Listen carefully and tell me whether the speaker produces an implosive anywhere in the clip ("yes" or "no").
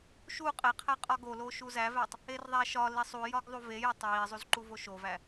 no